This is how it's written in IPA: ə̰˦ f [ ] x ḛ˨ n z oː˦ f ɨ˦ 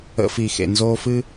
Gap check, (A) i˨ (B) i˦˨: A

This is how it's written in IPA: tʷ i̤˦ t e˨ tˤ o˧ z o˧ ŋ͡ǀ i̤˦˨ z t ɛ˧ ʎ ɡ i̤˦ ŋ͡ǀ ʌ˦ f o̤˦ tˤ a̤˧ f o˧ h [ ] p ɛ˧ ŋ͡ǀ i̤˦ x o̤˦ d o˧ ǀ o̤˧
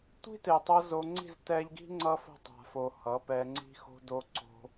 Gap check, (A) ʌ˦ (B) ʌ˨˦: B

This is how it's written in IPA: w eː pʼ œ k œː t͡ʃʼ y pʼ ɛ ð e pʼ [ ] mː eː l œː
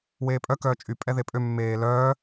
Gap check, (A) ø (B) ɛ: A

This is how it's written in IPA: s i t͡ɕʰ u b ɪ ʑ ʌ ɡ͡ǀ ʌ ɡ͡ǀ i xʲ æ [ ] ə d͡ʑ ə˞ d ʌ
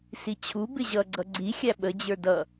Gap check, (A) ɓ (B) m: A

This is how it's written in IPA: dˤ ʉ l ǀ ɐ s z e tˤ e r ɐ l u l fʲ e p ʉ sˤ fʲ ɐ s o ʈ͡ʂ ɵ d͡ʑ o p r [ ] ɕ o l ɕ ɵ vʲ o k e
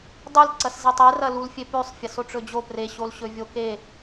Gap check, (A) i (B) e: B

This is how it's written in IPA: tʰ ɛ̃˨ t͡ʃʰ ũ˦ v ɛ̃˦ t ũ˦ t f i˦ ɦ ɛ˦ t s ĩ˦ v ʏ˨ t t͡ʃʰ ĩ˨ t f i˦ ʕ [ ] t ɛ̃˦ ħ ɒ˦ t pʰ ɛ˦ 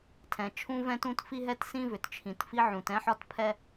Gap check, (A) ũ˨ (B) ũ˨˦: A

